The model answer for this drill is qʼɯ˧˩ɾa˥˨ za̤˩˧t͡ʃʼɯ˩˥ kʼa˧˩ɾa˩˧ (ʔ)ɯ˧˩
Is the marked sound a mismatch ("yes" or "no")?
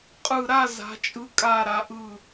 no